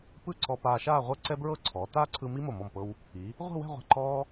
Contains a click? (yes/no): yes